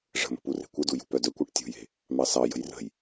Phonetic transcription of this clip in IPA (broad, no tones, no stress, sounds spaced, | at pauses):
ʐ ə̤ m ə̤ p u r e̤ kʷ ə d u j ṳ p œ d œ kʷ ɑ ʈ tʲ ṳ j e̤ | m ɑ s ɑ j ə̤ j r ə̤ j